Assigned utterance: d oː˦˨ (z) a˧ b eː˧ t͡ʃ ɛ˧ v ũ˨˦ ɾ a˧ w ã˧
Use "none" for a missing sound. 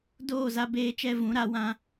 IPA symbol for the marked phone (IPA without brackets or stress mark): z